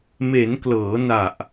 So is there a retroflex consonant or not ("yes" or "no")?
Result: no